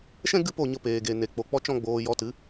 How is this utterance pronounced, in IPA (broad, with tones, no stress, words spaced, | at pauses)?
ʃɛ̃˦ ɡɨ˦po˦˨ɲə˧ peː˨ɡe˨ ne˨k͡po˨ k͡pɔ˦t͡ʃɔ̃˦ ɡ͡boː˧ jɔ˧tɨ˨˦